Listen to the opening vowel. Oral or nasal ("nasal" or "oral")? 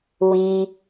nasal